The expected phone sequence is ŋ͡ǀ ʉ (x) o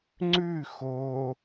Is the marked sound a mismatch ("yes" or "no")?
no